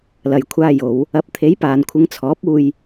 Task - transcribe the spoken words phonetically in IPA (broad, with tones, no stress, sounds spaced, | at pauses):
l ɐ˨ j kʷʰ aː˧ j o˨˧ w | ɐ˨˥ p̚ t̪ʰ e˨˥ j p aː˨ n kʷʰ ɪ˨˧ ŋ t͡sʰ ɔː˨˥ p̚ uː˧ j